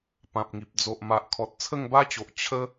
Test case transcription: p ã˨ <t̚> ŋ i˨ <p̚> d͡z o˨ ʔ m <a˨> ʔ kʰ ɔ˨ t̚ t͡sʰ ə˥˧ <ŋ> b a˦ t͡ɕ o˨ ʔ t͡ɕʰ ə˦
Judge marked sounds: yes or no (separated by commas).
no, yes, yes, yes